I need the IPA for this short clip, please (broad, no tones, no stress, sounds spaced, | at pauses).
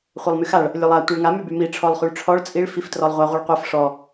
χʷ e lˠ m y x a ɭ | lʲ o lˠ a tʷ e ɭ ŋ a m y b y m i ʈ͡ʂʰ ɔ lˠ χ y ɭ ʈ͡ʂʰ ɔ ɭ t͡sʼ i ɭ f i f t r ɔ lˠ ʁʷ a ʁʷ i ɭ qʷ ɛ f ʂ ɔ